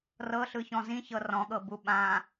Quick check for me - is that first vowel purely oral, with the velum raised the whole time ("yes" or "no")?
yes